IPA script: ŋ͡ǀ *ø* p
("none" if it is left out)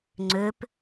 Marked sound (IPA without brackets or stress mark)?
ø